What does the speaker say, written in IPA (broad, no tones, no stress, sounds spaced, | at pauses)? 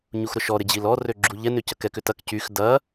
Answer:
ɲ u x ɾ ʊ ʃ ɔ ɾ ɪ d͡ʑ i l ɔ r ø ɡ͡ǁ u ʎ ɛ n ʏ c ɐ k ɛ k ʏ t ɐ k c y x d ɐ